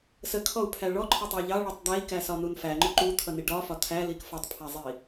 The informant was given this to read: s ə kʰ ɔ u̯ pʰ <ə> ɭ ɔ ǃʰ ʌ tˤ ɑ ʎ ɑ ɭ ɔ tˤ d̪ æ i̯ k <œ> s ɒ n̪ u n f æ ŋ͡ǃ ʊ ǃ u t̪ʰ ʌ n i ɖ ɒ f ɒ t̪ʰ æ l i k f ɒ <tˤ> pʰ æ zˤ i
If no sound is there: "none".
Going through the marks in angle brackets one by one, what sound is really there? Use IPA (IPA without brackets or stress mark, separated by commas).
æ, æ, tˤ